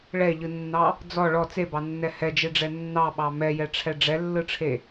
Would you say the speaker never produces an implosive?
no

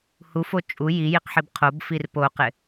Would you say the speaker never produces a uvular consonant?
no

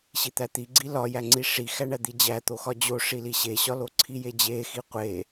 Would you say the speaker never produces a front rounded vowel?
yes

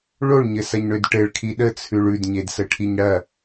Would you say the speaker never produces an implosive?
no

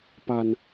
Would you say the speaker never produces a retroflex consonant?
yes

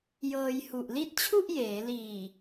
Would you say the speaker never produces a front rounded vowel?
yes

